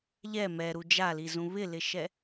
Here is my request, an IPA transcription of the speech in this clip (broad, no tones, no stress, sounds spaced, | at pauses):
ʎ ɛ m ɛ ɾ u d͡ʒ a l i z ũ β ɪ l ɪ ʃ ɛ